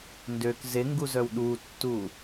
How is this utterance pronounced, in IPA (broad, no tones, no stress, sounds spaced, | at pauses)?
n d ø k z e ŋ ɡ u z œ w ɗ u tː u